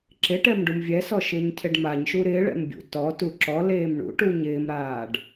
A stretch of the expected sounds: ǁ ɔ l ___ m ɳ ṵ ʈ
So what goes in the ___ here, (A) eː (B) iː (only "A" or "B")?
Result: A